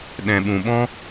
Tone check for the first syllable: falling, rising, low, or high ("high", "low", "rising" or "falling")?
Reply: low